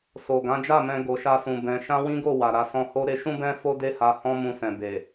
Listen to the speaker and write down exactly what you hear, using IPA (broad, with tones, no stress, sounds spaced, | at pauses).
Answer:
s o˨ ɡ ã˨˦ d͡ʒ a˦˨ m ɛ̃˧ ɡ o˧ ʃ a˦ s ũ˧ b ɛ̃˧ ʃ ã˦ w ĩ˦ ɡ o˦˨ w a˨ ɾ a˧ s ɔ̃˧ h o˦ ɾ e˧ ʃ ũ˦ b ɛ̃˦ f o˦ d e˦ h a˧ h ɔ̃˦ m ũ˧ s ɛ̃˨ b e˨